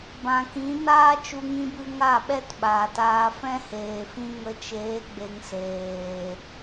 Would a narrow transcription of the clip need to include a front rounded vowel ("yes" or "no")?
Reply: no